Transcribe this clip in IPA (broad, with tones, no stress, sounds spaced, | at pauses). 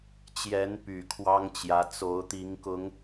t͡ɕ j ɛ˨˦ n p y˨˩ kʰ w ɑ˦ ŋ t͡ɕ j ä˨˦ t͡s o˨˦ ʊ̯ t̪ i˨˦ ŋ k ʊ˨˦ ŋ